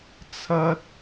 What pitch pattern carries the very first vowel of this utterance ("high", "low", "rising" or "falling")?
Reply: high